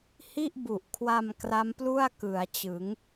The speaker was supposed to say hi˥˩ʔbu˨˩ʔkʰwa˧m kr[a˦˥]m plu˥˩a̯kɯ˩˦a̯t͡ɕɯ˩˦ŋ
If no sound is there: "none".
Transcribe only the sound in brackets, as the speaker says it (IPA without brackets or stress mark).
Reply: a˦˥